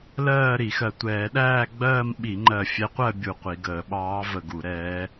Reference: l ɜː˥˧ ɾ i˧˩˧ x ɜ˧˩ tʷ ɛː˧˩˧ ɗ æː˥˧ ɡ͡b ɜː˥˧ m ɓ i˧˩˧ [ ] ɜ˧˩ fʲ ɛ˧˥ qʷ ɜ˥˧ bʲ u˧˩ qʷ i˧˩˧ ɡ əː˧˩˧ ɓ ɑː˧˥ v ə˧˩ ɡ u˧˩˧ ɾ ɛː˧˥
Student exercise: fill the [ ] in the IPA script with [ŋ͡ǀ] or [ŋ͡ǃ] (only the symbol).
ŋ͡ǃ